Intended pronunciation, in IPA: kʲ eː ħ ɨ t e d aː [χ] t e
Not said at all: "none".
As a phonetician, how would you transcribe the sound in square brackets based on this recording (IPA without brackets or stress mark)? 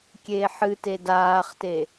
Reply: χ